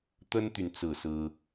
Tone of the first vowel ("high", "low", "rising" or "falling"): high